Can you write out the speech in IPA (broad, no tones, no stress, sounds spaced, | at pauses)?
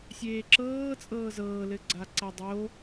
sʲ eː ǁ ɤː t͡sʼ ɤː z ɤː l ɘ ɡ͡ǀ a ǀ a dˤ o